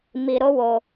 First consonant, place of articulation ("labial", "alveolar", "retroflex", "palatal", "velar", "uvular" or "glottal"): labial